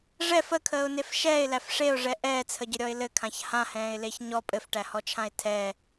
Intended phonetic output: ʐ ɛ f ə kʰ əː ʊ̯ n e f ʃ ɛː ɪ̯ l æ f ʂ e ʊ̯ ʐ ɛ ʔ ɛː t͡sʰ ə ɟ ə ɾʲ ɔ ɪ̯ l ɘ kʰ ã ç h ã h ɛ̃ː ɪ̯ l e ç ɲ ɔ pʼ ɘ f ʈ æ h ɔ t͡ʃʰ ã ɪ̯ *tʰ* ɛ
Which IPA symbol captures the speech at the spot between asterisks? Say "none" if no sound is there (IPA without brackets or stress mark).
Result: tʰ